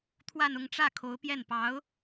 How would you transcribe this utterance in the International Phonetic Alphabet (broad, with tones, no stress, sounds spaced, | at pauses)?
t̪ʰ w a˥˧ n ʊ˥˧ ŋ ʈ͡ʂ ä˥˩ kʰ o˧˥ ʊ̯ p j ɛ˥˩ n p ɑ˧˥ ʊ̯